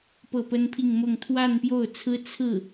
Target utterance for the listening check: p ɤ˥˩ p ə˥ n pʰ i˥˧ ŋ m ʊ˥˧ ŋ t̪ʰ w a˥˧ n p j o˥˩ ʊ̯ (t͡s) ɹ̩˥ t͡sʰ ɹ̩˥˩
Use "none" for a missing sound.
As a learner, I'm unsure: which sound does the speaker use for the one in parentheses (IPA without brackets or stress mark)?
t͡sʰ